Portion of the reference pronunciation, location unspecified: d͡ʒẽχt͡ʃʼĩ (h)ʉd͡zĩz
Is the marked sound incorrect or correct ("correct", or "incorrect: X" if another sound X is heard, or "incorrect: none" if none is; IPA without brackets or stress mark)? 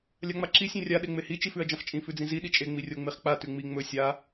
incorrect: f